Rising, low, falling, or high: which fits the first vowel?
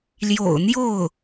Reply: low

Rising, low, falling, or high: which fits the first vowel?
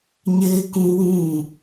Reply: high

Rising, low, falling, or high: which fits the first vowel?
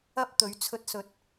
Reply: high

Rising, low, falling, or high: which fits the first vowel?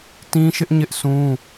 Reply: high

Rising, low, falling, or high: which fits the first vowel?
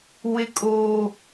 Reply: high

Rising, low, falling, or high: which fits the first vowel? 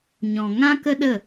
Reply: low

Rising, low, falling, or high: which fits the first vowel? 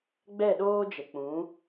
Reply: falling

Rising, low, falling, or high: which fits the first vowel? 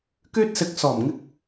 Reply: high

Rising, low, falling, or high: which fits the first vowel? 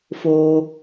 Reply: low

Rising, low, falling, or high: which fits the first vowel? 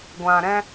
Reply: low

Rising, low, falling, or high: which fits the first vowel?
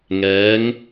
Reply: rising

